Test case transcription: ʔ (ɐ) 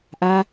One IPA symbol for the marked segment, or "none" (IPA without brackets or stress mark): a